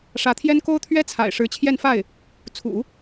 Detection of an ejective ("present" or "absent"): absent